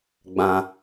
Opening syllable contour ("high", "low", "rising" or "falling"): high